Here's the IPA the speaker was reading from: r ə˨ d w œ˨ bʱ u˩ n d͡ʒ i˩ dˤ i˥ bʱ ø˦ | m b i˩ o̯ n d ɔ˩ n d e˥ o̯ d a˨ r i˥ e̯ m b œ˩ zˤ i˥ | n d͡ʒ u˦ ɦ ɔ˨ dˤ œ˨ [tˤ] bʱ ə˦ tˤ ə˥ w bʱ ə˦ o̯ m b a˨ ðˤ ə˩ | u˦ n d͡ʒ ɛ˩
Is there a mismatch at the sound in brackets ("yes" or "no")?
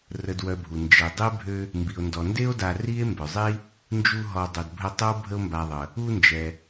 yes